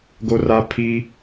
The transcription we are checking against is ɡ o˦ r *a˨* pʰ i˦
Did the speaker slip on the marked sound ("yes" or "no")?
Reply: yes